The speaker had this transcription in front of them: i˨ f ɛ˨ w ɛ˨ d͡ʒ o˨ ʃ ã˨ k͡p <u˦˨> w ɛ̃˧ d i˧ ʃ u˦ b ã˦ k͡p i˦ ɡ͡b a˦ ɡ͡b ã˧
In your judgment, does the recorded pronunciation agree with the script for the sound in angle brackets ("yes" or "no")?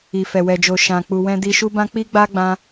no